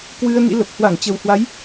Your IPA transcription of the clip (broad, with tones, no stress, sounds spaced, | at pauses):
k w ɨ˧ ə̯ n ḭ˧˥ l ə˨˩ p̚ h w a˧˩ ŋ t͡ɕ ə˨˩ w h w a˨˦ j